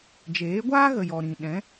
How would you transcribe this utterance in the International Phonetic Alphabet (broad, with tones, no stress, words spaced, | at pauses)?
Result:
d͡ʒeː˨˦ɡʷaː˦ɣə˨ jɔ˨ɾĩ˨ɗɛ̃˨˦